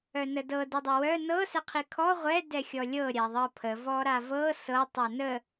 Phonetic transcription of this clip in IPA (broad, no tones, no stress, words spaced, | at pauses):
œnədɤ didˤəwœ nɤ sɛqʰikʰɔ ʁʷɛ dɛxʲɔlʲɤ ɾʲaðˤɤpʰə vɔɾavɤ sɤ tˤɛnə